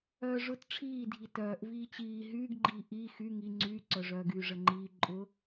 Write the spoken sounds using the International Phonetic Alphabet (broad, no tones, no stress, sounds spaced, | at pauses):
œː ʐ ʊ t ʈ͡ʂʰ iː dʱ i t œː ʔ v iː t͡ɕ iː ɦ yː ɡ ɡ͡ǃ iː ʔ i x y ŋ i ŋ͡ǀ yː ǀ œ ʐ œː ɡ yː ʐ ə ŋ͡ǃ iː ǃʼ ʊ